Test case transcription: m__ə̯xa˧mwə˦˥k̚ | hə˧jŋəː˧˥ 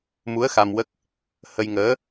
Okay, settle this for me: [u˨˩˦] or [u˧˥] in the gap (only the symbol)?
u˧˥